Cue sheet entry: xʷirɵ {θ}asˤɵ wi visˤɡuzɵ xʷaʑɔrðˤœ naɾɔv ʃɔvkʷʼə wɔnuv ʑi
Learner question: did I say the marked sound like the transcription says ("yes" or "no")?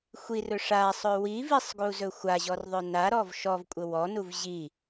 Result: no